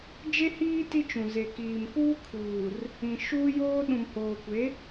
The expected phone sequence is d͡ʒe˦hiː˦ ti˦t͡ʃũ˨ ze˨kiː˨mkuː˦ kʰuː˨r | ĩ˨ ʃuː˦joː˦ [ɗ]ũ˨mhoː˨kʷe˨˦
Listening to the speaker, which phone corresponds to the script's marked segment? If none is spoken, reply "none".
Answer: ɗ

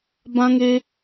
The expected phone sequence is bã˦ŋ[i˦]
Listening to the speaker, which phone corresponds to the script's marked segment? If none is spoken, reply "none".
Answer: e˦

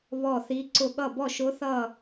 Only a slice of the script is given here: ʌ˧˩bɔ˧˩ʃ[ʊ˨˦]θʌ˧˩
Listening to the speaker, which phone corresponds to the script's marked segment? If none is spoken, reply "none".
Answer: ʊ˨˦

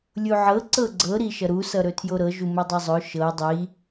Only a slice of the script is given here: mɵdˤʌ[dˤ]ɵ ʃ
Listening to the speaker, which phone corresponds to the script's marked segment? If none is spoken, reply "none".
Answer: zˤ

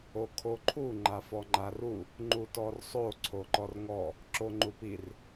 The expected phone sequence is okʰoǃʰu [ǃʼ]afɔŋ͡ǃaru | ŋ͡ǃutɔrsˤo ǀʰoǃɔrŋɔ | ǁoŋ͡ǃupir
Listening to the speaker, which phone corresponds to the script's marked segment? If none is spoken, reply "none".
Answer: ŋ͡ǃ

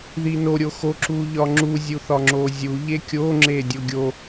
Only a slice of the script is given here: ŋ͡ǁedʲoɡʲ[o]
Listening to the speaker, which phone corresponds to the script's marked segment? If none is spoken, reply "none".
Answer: o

